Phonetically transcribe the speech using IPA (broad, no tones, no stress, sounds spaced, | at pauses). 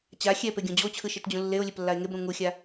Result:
t͡ɕ a xʲ ɛ p e ɡʲ õ d͡ʑ o t͡ɕʰ ɯ ʃ e t d͡ʑ ũ lː e o̯ lʲ e p lː a e̯ ŋ e b ɾ ũ ŋ u xʲ a